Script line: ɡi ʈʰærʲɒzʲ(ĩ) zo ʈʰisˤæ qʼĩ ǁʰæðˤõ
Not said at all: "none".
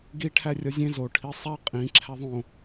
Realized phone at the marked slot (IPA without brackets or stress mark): ẽ